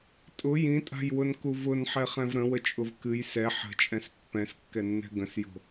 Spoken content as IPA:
tʼ ʊ j ĩ tʼ a̤ j w ʊ n k u v ʊ n ħ ɛ χ ɛ̃ v ɾ ə̃ w ə t͡ʃʼ ʊ v k ɨ j s ɛ ħ ə̤ t͡ʃʼ ɛ̃ s pː ɛ̃ s kː ɛ nː ɛ̤ ɡ ə̃ s j o̤

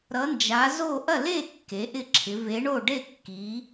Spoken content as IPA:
ɾ ʌ˨˦ n d͡ʒ a˨˦ z o˥˨ ʔ ɐ˥˨ l e˥˨ kː e˨˦ ʔ ɪ˥˨ ǁʰ ɪ˨˦ v e˨˦ ɳ o˥˨ ɖ e˥˨ kː i˨˦

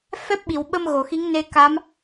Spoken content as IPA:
f ɛ˦˥ p̚ ɓ i˨˩˨ w ɓ ə˧ m ɣ o˨˩˨ x i˧˥ ŋ n e˧ k a˧˥ m

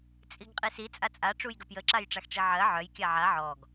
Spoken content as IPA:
t͡sʼ i ɡ qʼ i s i t͡sʼ a t͡sʼ a ʈ͡ʂ u j ɡ ə p j ə ǁ a j ʈ͡ʂ a x ʈ͡ʂ i ʕ ɜ ʕ œ j kʲ a ʕ a ʕ ɔ ɡ

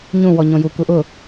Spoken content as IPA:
ɲ ũ w ɔ ɲ õ j u k u ʔ ʊ

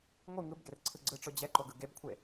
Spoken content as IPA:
ŋʷ ɯ ŋ ɯ b ɡ e r ǀʰ ɯ ɡ͡ǀ ɯ ʈ͡ʂ o d͡ʑ ɛ ǃ o ɡ ɯ ɡ e b kʷʰ e

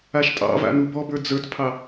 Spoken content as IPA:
a ʃ tʼ ɑ̰ v a̰ n u b ɔ b ə˞ d͡z ə˞ t pʰ ɑ

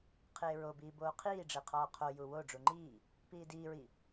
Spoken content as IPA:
qʰ eː ɹ o b iː b oː qʰ iː ɖ͡ʐ e qʰ ɒː qʰ o j u w o ɖ͡ʐ u ŋ͡ǃ iː | p iː d iː ɹ i

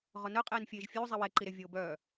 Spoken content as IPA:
ʁ ɔ n œ qʼ eː n fʲ eː ʒ fʲ uː zˤ i w ɛ ǃ i ɾ e vʲ oː b œː

